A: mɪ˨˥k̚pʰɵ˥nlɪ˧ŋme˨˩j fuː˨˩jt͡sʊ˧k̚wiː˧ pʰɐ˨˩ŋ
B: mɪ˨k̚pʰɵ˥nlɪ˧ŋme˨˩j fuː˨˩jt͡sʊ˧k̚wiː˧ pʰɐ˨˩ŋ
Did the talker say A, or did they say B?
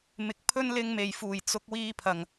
B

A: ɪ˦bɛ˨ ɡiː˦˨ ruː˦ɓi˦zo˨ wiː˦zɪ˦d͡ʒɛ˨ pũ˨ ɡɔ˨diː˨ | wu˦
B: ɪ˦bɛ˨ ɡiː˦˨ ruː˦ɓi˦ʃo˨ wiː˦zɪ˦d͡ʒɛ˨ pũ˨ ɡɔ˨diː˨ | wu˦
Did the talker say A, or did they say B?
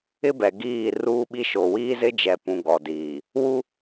B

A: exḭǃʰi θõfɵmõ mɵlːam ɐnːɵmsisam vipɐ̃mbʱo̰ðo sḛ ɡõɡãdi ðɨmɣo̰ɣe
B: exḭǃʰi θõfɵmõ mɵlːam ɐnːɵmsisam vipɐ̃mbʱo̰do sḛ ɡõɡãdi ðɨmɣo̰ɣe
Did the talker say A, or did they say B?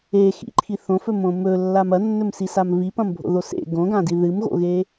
A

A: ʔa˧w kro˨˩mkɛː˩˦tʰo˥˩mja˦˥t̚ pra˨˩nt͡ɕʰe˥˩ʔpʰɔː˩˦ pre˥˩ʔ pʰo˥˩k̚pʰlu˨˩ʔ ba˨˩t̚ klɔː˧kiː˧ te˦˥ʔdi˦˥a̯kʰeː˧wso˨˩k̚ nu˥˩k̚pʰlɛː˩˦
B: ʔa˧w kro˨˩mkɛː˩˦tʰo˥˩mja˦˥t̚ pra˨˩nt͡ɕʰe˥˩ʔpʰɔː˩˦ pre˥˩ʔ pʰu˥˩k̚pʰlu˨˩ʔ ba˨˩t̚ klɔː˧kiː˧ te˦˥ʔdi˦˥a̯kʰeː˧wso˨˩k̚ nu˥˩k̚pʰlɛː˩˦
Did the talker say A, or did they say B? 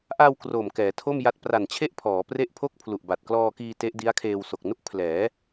A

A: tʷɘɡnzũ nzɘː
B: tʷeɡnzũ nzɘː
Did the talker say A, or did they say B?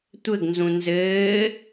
A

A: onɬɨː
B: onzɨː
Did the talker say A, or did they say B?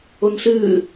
A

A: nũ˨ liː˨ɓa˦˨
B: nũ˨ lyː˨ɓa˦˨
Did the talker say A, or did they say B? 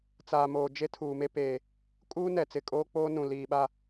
A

